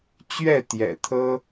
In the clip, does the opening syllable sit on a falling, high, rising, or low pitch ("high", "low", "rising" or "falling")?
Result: falling